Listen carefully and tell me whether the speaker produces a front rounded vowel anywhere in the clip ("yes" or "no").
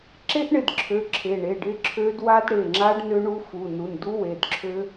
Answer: yes